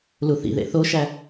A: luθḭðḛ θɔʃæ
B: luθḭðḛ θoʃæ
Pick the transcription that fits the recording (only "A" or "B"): B